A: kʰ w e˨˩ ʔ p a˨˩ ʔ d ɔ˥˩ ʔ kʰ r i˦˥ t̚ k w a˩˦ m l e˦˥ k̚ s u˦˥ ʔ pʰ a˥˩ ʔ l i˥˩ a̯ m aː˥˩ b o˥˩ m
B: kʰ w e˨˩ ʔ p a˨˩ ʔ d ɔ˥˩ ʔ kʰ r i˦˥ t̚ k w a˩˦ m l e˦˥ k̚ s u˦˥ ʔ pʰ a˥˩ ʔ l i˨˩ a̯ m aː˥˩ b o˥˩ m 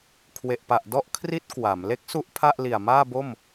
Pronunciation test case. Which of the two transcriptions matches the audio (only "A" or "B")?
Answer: B